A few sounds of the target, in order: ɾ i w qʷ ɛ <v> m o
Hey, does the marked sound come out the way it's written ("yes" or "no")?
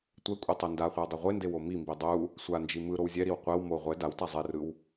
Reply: no